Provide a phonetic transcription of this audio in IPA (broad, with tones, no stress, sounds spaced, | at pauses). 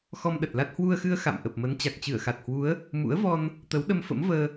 x ɔ˧ m ɗ ə˨˩ t̚ l a˦˥ t̚ h w u˧ ə̯ x ɨ˧ ə̯ x a̰˧˨ m ʔ ə˨˩ p̚ m ə˨˦ n t͡ɕ a˨˩ k̚ t͡ɕ ɨ˧˩ ə̯ x a˨˩ t̚ h w u˨˦ ə̯ | m ṵ˧˥ ə̯ v ɔ˧ n | t̪ ə˨˦ w ɗ ə˧ m f ə̰˧˥ m v əː˧